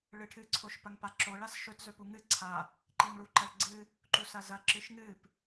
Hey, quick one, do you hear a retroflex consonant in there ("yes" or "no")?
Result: yes